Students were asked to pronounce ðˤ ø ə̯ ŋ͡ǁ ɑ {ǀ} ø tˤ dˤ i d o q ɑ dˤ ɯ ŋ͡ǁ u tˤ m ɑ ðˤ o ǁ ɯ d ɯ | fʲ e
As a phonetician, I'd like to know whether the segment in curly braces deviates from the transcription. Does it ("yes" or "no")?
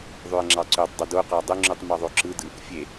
no